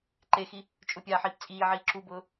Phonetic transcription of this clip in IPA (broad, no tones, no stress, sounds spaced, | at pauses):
ǃ e x i | t͡ʃʼ ʊ pʲ aː ħ iː p t͡sʼ iː ʕ iː ǁ u b ʊː